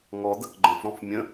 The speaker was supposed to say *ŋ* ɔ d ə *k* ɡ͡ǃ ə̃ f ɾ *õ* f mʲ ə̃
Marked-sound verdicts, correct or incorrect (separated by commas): correct, correct, incorrect